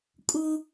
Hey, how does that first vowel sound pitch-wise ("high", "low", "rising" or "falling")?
high